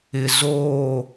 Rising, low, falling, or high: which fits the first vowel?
low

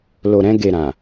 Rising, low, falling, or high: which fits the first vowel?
low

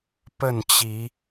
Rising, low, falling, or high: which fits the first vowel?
falling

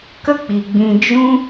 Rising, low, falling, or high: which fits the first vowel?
high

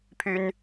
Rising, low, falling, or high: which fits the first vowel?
high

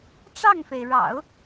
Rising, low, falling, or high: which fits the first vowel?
falling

